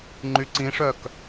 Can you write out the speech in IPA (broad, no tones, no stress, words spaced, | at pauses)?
ŋ͡ǃyǀĩʂœk